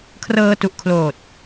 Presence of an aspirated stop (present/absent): present